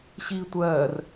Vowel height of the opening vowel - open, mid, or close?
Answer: close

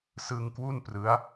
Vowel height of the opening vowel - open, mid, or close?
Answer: close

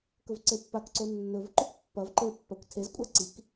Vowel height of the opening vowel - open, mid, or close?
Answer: mid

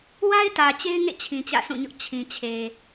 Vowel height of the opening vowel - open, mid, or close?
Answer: open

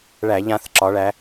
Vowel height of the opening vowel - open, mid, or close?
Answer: open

